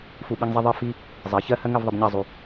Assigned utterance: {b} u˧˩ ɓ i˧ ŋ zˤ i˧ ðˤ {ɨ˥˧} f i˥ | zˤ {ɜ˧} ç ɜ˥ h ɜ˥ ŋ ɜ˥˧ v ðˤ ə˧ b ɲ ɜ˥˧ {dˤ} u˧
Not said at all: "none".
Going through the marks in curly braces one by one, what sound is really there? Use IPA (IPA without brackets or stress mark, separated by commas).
f, ɨ˥˧, ɜ˩˧, zˤ